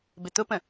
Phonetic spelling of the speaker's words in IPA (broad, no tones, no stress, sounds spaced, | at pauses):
b ɪ t̪ ʊ p ə̃